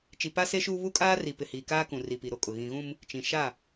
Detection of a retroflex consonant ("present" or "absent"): absent